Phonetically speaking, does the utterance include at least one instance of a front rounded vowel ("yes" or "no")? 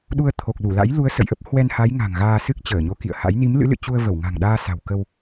no